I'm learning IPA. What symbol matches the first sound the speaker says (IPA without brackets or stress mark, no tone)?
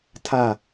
tʰ